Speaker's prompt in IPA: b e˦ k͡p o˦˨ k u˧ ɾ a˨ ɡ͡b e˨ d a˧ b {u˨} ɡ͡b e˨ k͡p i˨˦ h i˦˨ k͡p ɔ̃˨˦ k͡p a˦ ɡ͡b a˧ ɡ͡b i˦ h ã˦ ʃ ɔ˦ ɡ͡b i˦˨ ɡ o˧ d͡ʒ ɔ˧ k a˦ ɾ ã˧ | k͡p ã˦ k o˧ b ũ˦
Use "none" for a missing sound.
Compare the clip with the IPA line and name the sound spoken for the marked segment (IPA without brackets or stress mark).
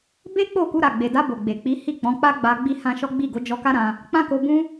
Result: o˨